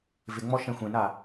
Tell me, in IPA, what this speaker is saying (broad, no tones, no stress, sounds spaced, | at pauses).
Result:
v ɪ ŋ͡m ɔ ʃ ɛ̃ xʷ ẽ n a